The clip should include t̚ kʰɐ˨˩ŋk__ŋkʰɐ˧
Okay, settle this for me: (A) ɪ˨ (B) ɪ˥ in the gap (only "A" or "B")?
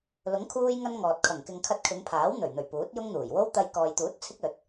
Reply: A